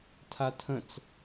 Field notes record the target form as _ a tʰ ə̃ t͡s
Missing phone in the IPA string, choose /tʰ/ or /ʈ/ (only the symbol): tʰ